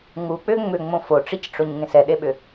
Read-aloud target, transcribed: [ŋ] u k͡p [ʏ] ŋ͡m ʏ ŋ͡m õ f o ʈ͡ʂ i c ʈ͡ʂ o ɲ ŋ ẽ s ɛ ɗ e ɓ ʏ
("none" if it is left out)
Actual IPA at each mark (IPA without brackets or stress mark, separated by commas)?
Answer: ŋ, ʏ